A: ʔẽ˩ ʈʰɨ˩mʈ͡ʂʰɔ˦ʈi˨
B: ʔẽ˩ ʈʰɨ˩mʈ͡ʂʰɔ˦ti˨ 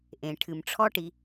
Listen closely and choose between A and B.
A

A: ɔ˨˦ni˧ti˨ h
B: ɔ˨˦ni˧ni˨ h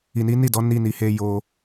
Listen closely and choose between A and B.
B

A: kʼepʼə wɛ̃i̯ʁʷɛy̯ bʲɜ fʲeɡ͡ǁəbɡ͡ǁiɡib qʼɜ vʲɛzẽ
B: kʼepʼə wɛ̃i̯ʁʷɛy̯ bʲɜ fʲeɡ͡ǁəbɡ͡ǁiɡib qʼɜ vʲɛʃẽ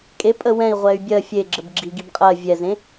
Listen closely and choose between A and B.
A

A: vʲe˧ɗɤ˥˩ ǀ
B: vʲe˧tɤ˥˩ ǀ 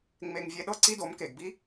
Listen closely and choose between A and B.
A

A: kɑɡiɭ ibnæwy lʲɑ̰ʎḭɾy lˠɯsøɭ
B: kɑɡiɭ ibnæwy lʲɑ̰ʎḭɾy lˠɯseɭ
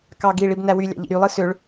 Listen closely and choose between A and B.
A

